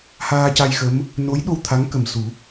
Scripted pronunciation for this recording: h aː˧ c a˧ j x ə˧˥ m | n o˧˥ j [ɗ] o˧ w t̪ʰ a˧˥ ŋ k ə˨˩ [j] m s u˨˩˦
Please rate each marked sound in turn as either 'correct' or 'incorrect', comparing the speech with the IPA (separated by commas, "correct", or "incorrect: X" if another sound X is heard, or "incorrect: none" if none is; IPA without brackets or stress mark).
correct, incorrect: none